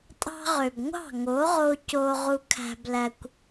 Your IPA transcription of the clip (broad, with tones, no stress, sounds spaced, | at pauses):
tʼ ɑ̤˧ ʁ ø˨ b ŋʷ ɑ̤˦˨ ŋ o˨˦ ʁ o˧ c o˧ ʁ u˧ kʰ æ̤˧ b l æ˧ kʷ